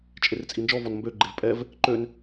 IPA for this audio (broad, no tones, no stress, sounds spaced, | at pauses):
t͡ʃʼ e r t͡sʼ i n d͡ʒ ɔ v ɔ n m b ø ɡ͡ǃ e v pʼ ɛ v | ǃ ø n